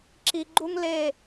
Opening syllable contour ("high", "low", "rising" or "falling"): low